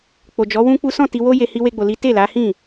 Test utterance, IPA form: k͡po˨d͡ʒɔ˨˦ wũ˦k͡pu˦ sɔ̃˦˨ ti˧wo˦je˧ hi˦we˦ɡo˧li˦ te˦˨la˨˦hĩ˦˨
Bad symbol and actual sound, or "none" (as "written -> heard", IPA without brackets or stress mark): ɡ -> ɡ͡b